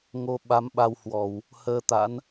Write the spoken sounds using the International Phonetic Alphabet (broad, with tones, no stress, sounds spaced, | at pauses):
ŋ o˧ ɓ a˨˦ m ɓ a˧ w h w ɔ˧˩˨ w | h əː˧ t̪ a̰˧˥ n